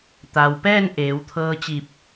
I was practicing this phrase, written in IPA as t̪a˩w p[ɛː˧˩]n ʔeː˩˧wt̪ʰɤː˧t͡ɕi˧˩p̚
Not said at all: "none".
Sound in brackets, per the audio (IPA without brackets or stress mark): ɛː˥˨